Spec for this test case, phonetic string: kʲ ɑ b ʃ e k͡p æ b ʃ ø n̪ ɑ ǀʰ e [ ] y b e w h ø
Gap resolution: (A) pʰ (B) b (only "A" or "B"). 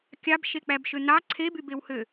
B